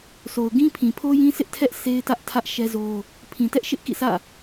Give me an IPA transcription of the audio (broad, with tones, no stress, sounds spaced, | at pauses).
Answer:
sʰ o˨ ʊ̯ ɡ ĩ˦ pʰ ĩ˨ pʰ o˦ j ĩ˦ sʰ ɪ˦ ʔ tʰ ɛ˦ ʔ s e˦ ɪ̯ t ä˦ ʔ tʰ ä˦ ʔ ʃ ɛ˦ z o˦ | pʰ ĩ˨ t ɛ˦ ʔ ʃ ɪ˦ ʔ k ḭ˦˨ s ä̰˦˨